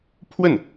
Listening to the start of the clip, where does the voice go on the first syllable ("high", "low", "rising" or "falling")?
falling